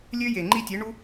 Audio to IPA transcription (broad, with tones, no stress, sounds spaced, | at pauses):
lʲ ø˦ j e˨ ŋ͡ǃ i˧ tʲ e˨˦ ɳ u˦